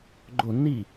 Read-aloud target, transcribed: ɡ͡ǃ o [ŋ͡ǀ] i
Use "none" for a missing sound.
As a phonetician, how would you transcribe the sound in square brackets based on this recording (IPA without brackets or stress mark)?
n